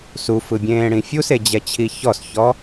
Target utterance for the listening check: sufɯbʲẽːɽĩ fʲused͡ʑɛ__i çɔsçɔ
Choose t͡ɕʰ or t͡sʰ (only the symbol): t͡ɕʰ